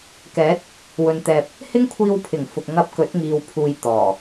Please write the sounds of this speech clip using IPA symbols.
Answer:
kɛː˨˥t̚ | wɵ˨nt̪ɛː˨p̚ | hɪ˥ŋkʷʰiː˧wpʰɪ˨˩ŋ fʊ˨k̚ŋɐ˧p̚kɵ˨˥t̚ŋiː˨w pʰuː˧jt̪ɔː˨˩

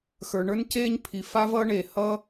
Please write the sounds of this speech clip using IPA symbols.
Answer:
xə˞˩ɳə˞˥nceː˥ɲpʰi˩ fa˥vʌː˥ɳeː˩ hʌ˥

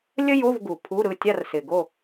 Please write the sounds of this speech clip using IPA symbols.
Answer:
lʲə˥jo˧˥˧v ɡu˨˩pʰu˧˥˧ɾɯ˥˨ tʲa˥˨rsɪ˨˩ɡo˥˨

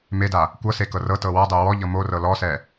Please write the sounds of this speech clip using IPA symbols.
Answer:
meda | kʷɤse kɤrɤtɤ wɔdˤe wɔʎɤ morɤ lɔsɛ

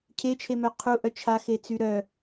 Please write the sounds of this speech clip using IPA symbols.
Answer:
cʰet͡ʃʰemœ qʰuʔœ t͡ʃʰaxet͡sy ɾœ

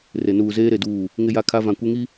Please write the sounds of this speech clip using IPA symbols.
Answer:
re˨ nuː˨zeː˦ɾe˨duː˦˨ | ŋɪ˦ja˦kʰa˦ vã˨ kʷe˦ŋi˦

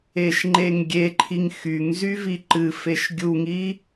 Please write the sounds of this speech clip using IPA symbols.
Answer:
eʃŋ͡ǃeŋɡʲeǃʰiŋ xyŋzy viǃɨfeʃ ɡʲuŋi

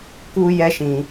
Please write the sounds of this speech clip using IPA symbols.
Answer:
ku˦ jɛ˦ʃĩ˧

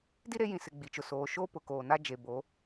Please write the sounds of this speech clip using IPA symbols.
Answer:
di˦ɾe˨˦jĩ˨sɪ˨ ɡ͡bi˨t͡ʃʊ˨ soː˨ʃoː˦ pʊ˨koː˨na˦ d͡ʒe˨bo˨˦

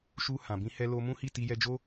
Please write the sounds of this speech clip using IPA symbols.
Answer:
ʃu˧ hã˨bĩ˧ hɛ˧lo˧mũ˦ hi˦˨ti˧jɛ˧d͡ʒo˦

